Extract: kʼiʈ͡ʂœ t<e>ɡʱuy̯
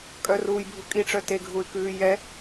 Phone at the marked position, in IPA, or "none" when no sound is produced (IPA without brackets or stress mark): e